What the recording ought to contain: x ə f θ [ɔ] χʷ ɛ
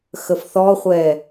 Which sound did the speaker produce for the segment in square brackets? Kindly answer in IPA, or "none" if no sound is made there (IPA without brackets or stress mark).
ɔ